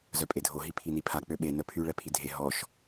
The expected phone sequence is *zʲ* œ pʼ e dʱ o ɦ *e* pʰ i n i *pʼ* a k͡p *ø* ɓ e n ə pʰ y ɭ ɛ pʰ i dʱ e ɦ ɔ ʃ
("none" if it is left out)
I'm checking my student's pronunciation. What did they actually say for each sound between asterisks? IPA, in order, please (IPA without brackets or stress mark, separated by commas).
z, i, pʰ, ø